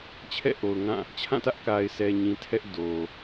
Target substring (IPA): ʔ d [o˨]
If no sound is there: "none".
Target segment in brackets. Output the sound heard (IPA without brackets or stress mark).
o˨